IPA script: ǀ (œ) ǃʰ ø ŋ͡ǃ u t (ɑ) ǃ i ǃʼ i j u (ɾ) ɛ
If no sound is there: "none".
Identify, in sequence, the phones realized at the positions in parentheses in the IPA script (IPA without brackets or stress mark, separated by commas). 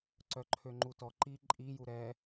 œ, ɔ, ɾ